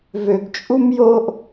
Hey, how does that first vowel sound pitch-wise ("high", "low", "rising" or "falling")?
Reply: low